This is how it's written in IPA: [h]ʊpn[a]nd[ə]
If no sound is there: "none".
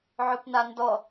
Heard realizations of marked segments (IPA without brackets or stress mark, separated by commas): ʕ, a, ɔ